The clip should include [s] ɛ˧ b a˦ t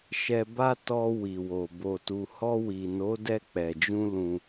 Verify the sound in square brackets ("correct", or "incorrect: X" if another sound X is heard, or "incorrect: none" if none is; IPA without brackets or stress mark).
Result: incorrect: ʃ